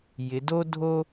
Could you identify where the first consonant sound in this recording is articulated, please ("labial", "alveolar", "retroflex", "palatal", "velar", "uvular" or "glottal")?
palatal